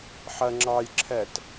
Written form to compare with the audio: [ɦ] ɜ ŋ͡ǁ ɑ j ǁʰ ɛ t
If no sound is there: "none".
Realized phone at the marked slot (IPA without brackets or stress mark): ħ